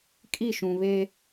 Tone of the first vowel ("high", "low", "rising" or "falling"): falling